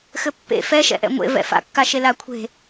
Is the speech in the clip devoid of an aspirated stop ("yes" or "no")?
no